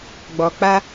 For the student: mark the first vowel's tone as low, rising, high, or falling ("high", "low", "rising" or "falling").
low